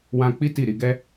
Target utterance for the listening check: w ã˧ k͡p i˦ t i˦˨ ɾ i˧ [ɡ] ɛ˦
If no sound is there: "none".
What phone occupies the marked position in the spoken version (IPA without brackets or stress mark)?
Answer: ɡ